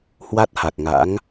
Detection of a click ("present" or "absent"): absent